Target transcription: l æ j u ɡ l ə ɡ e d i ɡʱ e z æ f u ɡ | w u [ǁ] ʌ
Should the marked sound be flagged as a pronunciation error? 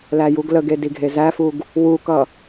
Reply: yes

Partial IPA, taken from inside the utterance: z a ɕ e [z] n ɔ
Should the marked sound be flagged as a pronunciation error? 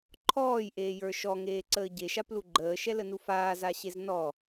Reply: no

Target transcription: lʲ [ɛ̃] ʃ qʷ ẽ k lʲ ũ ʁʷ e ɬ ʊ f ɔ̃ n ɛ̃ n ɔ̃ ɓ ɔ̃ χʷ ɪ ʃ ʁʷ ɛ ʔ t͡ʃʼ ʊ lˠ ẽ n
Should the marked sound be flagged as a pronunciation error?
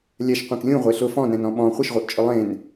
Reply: yes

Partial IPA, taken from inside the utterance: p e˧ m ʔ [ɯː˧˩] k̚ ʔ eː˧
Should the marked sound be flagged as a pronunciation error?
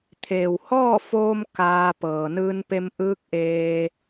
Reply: yes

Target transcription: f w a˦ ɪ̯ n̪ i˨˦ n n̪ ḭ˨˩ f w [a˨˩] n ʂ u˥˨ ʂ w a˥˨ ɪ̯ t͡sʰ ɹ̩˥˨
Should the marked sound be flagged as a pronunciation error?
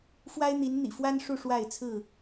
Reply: yes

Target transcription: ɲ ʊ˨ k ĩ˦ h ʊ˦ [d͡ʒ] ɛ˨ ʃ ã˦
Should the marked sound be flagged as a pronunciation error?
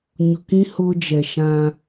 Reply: no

